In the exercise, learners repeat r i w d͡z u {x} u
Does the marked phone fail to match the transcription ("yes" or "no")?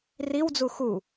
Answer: no